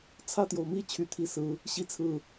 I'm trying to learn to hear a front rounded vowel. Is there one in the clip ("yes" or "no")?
yes